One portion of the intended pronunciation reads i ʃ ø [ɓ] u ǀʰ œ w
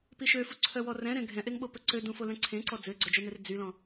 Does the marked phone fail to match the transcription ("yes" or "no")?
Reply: yes